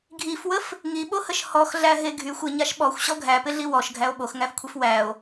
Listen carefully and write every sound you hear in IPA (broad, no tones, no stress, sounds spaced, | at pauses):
ɡʱ i f w ə f | ŋ i ɓ o h ə ʃ h ɔ x ɮ æ ɦ e ɡʱ y xʷ ɪ ɲ a ʃ ɓ ɔ xʷ ɕ ɔ ɡʱ æ p ɪ ɮ i w ɔ ʃ ɡʱ æ o̯ ɓ o x ŋ æ f kʷʰ e f w æ o̯